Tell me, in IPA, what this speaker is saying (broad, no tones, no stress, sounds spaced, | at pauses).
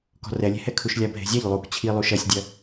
k ɔ̤ r ɛ lʲ e̤ h ɛ kʰ u ʃ lʲ a bʱ e̤ zʲ a ʎ lˠ u k t͡ɕʰ i lˠ u ʃ ɐ sʲ dʲ ɐ